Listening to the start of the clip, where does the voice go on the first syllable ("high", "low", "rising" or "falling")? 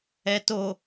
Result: low